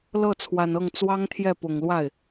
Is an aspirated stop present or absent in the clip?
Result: present